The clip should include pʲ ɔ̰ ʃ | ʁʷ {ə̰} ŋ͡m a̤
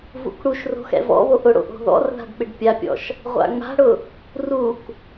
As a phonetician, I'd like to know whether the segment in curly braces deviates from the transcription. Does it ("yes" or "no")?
yes